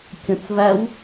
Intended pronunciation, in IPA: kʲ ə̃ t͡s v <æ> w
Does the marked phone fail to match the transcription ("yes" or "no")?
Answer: no